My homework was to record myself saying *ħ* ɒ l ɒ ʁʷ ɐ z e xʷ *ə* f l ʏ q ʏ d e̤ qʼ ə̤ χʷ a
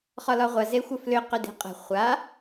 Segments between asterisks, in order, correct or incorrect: incorrect, correct

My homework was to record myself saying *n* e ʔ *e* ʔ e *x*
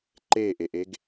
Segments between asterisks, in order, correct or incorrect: incorrect, correct, incorrect

